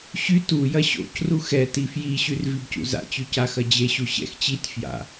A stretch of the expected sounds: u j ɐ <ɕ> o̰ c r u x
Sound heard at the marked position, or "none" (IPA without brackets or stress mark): ɕ